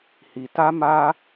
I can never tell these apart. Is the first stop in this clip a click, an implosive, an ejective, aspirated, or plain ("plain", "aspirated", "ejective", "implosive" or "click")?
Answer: plain